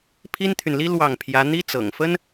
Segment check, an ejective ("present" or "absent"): absent